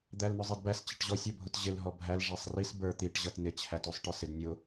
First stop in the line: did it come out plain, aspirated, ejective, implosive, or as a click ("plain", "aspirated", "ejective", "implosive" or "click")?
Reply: plain